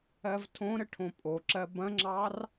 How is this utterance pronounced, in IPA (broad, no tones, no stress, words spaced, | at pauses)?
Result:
ɜvtʰõɾə ʈʰõpʼoǁɜ bɐ̃ŋ͡ǁɑr